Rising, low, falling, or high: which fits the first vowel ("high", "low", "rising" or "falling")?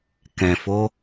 low